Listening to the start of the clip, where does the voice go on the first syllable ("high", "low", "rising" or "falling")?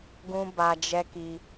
high